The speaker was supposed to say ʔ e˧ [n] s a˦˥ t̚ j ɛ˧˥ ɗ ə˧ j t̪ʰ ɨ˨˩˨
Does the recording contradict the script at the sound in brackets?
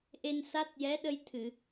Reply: no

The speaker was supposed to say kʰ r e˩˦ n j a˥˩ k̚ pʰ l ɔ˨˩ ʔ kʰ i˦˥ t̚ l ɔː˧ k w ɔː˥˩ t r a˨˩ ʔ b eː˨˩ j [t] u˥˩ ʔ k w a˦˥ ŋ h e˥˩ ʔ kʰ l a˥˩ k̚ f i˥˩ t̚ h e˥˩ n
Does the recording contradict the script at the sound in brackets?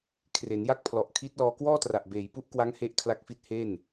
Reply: yes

